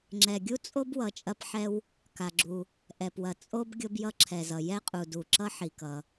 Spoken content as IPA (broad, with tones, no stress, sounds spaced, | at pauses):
ŋ͡ǁ ɛ˩ ɡʲ u˥ t͡sʼ o˥ b w ʌ˩ t͡ʃʼ ɐ˥ p ħ ɛ˥ w | k a˩ ɡ͡ǁ u˩ | ʔ ɛ˩ p w ɐ˩ t͡sʼ o˥ b ɡʲ o˥ b j ʌ˥ ǁʰ ɛ˩ z ʌ˩ j ɛ˥ qʼ u˩ d u˩ ǁ ʌ˥ ħ i˩ k ʌ˩